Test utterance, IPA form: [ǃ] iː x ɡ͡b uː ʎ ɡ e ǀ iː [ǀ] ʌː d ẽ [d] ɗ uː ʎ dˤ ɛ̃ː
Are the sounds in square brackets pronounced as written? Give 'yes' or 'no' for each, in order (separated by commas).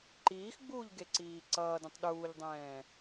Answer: yes, yes, no